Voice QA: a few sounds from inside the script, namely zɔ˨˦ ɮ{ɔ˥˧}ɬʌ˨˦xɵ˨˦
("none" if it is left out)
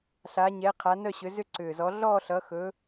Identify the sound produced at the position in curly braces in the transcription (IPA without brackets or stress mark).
ɔ˥˧